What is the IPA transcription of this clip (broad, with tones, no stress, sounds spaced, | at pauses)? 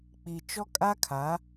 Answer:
k͡p i˨ t͡ʃ ɔ˦ kʼ a˦ kʰ a˨˦